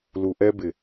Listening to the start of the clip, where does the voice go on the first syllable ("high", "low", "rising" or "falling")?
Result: low